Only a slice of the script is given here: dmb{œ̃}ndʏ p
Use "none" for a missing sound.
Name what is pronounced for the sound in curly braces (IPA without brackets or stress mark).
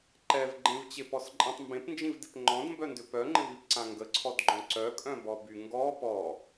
œ